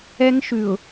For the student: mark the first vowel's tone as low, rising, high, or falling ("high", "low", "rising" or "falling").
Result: high